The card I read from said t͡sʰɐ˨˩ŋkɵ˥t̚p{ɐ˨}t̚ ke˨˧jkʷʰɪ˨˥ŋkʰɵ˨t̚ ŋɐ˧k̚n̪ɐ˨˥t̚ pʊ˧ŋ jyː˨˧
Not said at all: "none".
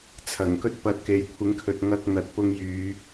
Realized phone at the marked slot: ɐ˧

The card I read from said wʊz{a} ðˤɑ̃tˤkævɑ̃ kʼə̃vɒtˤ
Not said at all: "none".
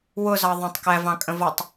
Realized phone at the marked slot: ɑ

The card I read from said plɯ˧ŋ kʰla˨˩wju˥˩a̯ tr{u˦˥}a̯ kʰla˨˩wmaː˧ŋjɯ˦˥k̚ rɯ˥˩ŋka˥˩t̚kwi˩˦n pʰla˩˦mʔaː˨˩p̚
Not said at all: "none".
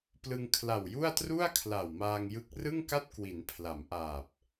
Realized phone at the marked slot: u˥˩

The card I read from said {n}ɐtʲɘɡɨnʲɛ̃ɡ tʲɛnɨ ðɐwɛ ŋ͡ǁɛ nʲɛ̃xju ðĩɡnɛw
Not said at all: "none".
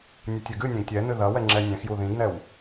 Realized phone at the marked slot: nʲ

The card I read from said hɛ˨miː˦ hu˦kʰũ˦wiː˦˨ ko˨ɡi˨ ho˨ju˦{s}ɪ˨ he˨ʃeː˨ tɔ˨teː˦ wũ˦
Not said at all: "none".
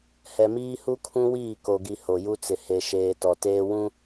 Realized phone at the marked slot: t͡s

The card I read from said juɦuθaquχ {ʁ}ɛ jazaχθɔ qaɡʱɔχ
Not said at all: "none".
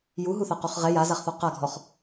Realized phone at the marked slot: ʁ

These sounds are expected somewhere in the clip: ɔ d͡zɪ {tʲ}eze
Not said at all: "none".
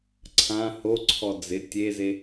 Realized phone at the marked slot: tʲ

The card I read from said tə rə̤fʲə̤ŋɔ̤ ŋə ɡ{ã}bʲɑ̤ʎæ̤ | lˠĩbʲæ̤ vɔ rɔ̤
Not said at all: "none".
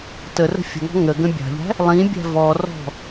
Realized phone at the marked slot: ə̃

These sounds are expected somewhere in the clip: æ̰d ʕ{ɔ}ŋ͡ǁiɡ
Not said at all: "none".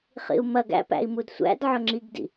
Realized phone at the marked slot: ɵ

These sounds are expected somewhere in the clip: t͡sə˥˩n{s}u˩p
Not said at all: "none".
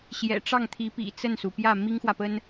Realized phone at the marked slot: s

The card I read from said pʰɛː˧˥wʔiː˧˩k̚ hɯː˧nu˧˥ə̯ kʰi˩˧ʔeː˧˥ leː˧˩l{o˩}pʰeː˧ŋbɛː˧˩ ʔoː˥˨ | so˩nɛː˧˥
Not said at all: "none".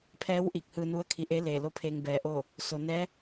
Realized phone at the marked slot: o˧˥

